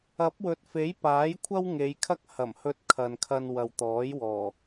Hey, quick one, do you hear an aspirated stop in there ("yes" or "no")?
yes